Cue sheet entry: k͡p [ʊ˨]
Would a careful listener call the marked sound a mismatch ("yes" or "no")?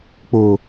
no